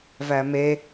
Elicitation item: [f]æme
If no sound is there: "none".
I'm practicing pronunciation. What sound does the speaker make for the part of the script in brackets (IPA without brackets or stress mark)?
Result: v